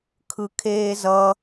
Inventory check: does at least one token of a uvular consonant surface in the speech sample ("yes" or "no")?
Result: no